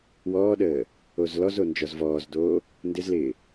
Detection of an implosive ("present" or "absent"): present